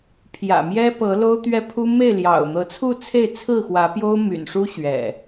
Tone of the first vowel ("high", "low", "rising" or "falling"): low